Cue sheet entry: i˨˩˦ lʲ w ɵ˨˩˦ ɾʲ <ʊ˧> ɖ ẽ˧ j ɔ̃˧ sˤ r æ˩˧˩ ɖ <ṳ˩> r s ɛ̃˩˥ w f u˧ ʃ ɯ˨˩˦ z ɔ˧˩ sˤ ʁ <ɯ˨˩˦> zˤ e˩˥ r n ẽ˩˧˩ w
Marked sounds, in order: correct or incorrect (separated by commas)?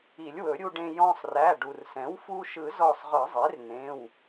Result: incorrect, incorrect, correct